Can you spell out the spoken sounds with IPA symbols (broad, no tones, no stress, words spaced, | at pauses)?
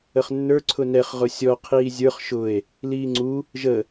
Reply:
əχnːə˞ ǀʰʊnɛχ ʁʊsʲɔ qʰiːzʲə˞χ ʃʊe̯ | liːŋ͡ǀu | ʒə